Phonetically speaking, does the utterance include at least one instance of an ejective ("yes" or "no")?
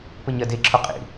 yes